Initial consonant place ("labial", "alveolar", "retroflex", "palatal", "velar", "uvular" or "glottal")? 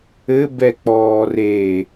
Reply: labial